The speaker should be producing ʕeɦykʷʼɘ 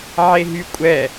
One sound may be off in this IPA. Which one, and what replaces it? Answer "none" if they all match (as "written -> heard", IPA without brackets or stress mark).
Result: ɘ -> ɛ